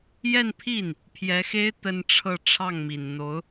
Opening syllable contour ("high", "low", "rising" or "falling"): falling